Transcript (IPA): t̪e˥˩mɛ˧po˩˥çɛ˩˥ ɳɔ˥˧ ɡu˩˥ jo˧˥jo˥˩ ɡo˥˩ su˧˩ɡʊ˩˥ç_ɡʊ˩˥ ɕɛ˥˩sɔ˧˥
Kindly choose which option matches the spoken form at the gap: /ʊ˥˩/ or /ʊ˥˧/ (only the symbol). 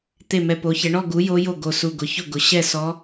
ʊ˥˩